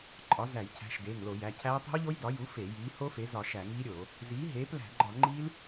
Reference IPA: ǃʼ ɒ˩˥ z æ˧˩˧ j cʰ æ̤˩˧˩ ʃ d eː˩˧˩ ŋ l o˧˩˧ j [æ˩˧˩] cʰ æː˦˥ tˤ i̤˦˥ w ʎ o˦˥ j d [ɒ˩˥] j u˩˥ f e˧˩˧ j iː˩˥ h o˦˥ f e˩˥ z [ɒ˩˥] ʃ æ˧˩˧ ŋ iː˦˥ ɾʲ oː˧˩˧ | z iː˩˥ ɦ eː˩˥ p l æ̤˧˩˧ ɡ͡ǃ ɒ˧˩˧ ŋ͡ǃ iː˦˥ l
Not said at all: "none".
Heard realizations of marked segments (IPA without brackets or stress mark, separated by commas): æ˩˧˩, ɒ˩˥, ɒ˧˩˧